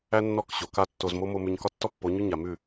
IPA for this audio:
æ˦ nː ɔ˦˨ k ɕ o˨ k a˦ tː o˧ z m o˦ m o˧ m ʉ˧ ɲ k ɒ˦ tː ɔ˦ pː o˨˦ ɲ ʉ˦ ɲ a˨ m ʉ˦˨

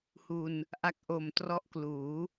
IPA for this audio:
h u˧ n | ʔ a˦˥ k̚ ʔ o˨˩ m t r ɔ˦˥ ʔ k l uː˩˦

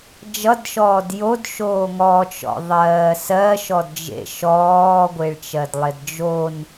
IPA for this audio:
d͡ʒ ʌ d ʃ ɔː d j o d ʃ oː ŋ ɔ t͡ʃ ɔ̰ ðˤ ɜː s ɜ ʃ ɔ d d͡ʒ ḛ ʃ ɔː ɡʷ e ɭ t͡ʃ ɜ d lˠ e d d͡ʒ o n

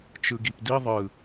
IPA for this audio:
t͡ʃ ɯ ɡ i p d i ðˤ ɯ

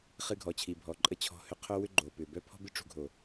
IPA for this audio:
χ ɨ˧ ɡʱ ɔ˨ t͡ɕʰ i˨ bʱ ɔ˨ ǃʼ ə˧ t͡ɕʰ ɔ̤˧ h ʏ˧ qʰ o˦ w ʏ˦ ɡ͡ǃ o˨ p ʏ˨ b œ˦ pʰ ɔ̤˦ b ɨ˦ ʈ͡ʂ ṳ˧ ɡʱ o˨

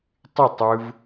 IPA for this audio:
tˤ ɪ tˤ ɯ v

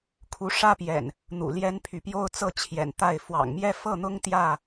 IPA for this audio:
kʰ u˨˦ ʂ ä˦ p j ɛ̰˨˩ n | n̪ ṵ˨˩ l j ɛ˦ n pʰ y˨ p j o˦ ʊ̯ t͡s ɤ˥˨ t͡ɕʰ j ɛ̰˨˩ n t̪ a˥˨ ɪ̯ f w ɑ̰˨˩ ŋ m j ɛ˥˨ f ɤ˥˨ n̪ ʊ˦ ŋ t̪ j ä˥˨

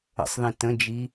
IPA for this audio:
ə̰ sˤ ð ĩ t ə̃ d͡ʒ i

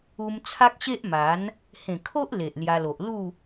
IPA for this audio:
u˧ m t͡sʰ a˦ k̚ ɕ e˦ ʔ m a˨˦ n | h ẽ˨˩ kʰ o˦ ʔ l e˨ ʔ l j a˧ l o˨ ʔ l u˥˧

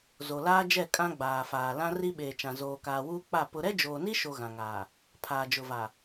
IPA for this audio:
z o˨ l aː˦ d͡ʒ ɛ˦˨ kʼ ã˦ ɡ͡b aː˨ f aː˨ l ã˦ r i˦ ɓ eː˨ t͡ʃ ã˨ z oː˨ k aː˨ w uː˦ k͡p a˦˨ p ʊ˦ ɾ ɛ˦ d͡ʒ oː˨ n i˦ ʃ o˨ ɣ ã˨ ŋ aː˨ | pʰ aː˨ d͡ʒ ʊ˨ v a˨

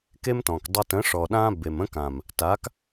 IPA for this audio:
k e˦ m t ɔ̃˨ k dˤ ə˧ t ə̃˨˦ ʂ ɔ˨ ɗ ã˦ b e˨ m ə̃˦ k ã˨ m | t a˨˦ k

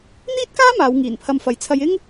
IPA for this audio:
n̪ iː˥ t̚ k aː˥ m aː˨˧ w ŋ iː˨˩ n pʰ ɐ˧ m f ɐ˨ j t͡sʰ ɐ˧ j ɪ˥ ŋ

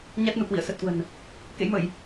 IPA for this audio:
ɲ a˦˥ t̚ n u˧˩ k w ḭ˧˨ ə̯ s ə˨˩ t̚ k w ə̤˨˩ n | k ḛ˧˥ j m ə˧˩˨ j

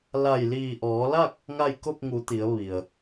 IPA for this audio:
l a˧˩ j l iː˧˩ ʔ ɔː˩˧ l a˥˨ k̚ | ŋ a˥˨ j k o˥˨ p̚ ŋ u˩˧ t̪ i˩˧ ə̯ ʋ i˩ ə̯

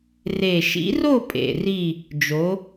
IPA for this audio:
r e˨˩ ʃ ḭ˨˥ r o˥˨ pʼ ḛ˨˩ r i˥˨ | d͡ʒ o˨˥

